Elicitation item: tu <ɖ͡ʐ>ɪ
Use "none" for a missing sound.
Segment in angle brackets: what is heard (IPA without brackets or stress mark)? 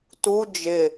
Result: d͡ʒ